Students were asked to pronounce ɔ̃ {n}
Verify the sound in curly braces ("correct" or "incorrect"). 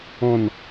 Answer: correct